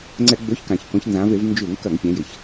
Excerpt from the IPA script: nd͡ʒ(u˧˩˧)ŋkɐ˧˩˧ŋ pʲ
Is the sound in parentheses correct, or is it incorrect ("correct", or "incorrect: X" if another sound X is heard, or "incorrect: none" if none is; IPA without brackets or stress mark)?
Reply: correct